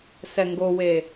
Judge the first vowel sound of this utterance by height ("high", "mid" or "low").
mid